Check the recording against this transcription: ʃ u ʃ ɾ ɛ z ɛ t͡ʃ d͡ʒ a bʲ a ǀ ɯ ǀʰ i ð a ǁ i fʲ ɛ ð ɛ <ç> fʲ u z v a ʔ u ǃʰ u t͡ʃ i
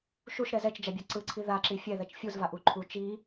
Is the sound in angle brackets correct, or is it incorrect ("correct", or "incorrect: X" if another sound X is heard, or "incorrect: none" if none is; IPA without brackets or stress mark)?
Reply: incorrect: t͡ʃ